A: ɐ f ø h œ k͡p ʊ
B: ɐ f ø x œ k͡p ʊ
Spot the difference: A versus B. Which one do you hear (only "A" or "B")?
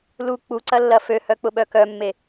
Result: A